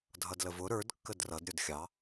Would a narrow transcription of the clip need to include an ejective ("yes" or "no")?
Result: no